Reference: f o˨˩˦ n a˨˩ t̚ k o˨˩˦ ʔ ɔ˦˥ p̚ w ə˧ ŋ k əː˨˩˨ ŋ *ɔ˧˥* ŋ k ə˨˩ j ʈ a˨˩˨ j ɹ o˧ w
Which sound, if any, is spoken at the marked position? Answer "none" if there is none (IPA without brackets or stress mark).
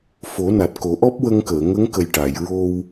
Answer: ə˧˥